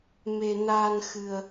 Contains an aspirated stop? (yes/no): no